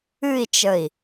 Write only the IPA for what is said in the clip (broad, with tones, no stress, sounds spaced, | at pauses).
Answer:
ɨ˥˧ i̯ t͡ʃ ə˧˩ i̯